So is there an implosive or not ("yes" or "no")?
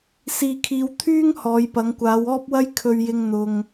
no